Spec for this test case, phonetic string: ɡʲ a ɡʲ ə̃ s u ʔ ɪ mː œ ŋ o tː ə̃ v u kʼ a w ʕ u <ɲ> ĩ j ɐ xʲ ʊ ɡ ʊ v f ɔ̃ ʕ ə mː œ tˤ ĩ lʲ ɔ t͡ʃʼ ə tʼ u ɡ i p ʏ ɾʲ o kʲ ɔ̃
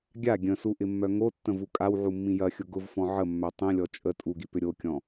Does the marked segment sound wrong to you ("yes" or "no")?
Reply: yes